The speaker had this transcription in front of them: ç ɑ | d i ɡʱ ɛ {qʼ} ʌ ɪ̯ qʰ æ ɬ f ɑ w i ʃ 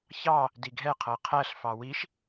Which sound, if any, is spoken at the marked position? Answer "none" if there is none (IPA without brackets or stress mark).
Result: qʰ